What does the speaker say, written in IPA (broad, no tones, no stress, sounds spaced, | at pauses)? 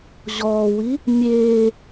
ʑ ɔː w i | mʲ eː